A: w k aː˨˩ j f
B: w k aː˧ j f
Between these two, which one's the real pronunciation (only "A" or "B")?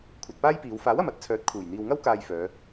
B